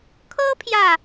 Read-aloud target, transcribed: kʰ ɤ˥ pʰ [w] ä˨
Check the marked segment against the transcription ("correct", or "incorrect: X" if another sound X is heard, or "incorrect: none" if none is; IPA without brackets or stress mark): incorrect: j